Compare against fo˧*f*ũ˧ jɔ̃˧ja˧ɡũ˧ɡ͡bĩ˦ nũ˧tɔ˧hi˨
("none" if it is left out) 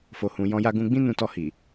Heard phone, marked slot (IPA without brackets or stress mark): h